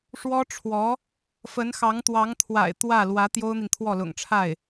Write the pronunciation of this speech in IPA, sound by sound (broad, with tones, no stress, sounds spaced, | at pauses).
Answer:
ʂ w ɔ˥ ʈ͡ʂʰ w ɔ˧˥ | f ə˧˥ n x ɑ˧˥ ŋ t̪ w ɑ˧˥ ŋ t̪ʰ w a̰˨˩ ɪ̯ t̪ w ä˥˩ l w ä˧˥ t̪ j o˥ ʊ̯ n̪ i˨ n t̪ʰ w ɔ˥˩ l ʊ̰˨˩ ŋ ʈ͡ʂʰ a˥˩ ɪ̯